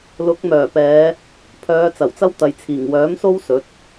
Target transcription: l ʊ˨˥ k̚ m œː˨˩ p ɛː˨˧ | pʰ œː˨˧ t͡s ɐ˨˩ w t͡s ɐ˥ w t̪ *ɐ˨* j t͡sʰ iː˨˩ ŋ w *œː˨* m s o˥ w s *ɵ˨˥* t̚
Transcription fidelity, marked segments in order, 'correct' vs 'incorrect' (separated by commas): correct, incorrect, correct